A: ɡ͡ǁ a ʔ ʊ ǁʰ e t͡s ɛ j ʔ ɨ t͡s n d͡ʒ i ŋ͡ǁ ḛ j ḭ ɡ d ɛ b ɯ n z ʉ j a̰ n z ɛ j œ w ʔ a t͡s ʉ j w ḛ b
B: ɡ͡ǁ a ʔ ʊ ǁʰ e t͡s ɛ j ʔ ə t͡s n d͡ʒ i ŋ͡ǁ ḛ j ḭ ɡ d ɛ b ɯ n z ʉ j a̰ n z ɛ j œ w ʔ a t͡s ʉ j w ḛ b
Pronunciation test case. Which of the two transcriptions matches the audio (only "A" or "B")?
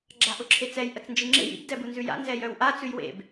B